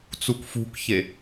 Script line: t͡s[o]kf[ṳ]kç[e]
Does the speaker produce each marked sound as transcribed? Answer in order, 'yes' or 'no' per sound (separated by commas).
no, yes, yes